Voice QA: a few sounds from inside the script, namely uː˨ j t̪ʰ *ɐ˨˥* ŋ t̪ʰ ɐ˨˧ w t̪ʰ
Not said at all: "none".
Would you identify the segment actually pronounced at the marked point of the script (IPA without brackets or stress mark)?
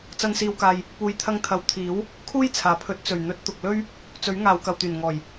ɐ˧